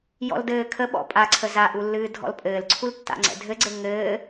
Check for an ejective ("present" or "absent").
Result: present